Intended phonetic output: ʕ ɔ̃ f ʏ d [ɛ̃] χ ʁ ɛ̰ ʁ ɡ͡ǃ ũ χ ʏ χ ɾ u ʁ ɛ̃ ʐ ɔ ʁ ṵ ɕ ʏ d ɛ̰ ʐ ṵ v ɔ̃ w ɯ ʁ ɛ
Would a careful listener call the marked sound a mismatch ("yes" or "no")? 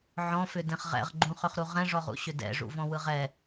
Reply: no